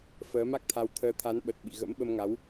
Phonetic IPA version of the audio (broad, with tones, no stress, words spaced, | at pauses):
fəː˨˦ma˦˥k̚t̪ʰa˧wt̪ʰəː˧ t̪ʰa˨˦nɓə˨˩t̚ ɓḭ˧˨ɣə̰˧˥mɓə˧mŋa˨˦w